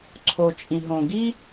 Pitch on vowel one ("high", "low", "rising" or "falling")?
low